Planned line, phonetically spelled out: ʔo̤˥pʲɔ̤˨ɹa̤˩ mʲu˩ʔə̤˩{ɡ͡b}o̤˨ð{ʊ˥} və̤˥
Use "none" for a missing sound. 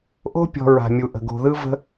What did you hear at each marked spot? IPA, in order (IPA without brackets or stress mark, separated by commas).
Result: ɡ, ɯ˥